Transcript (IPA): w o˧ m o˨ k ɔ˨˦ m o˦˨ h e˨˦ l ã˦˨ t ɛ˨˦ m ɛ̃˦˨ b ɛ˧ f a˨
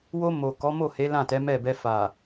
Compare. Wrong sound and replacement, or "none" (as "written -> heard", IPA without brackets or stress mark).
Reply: ɛ̃˦˨ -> ɛ˦˨